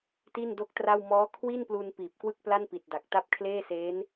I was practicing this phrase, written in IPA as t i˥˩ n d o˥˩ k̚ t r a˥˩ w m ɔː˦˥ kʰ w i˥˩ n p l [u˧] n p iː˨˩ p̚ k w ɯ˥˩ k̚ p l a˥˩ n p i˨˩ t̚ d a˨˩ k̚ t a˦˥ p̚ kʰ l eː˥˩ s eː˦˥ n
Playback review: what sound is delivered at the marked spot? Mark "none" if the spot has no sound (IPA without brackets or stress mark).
u˧